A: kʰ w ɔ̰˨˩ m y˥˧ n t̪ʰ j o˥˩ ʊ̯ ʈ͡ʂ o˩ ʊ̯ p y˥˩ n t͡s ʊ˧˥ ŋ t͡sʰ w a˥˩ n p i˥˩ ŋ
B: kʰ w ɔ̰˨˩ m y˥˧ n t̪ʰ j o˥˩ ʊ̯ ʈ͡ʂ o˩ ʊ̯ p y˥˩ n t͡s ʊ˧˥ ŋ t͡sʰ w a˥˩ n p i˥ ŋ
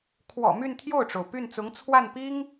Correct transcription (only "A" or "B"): B